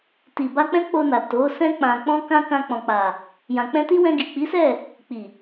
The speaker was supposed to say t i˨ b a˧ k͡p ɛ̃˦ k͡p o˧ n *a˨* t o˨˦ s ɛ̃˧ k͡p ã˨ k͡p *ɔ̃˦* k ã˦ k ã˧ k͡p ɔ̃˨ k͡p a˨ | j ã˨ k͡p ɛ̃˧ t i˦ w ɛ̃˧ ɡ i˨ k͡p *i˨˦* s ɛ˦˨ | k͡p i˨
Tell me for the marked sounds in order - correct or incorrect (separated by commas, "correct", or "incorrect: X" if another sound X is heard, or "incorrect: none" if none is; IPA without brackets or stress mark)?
correct, incorrect: ɔ̃˧, correct